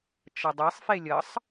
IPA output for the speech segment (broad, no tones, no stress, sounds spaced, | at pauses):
t͡ʃ ʌ dˤ e sˤ f e lʲ ʌ sˤ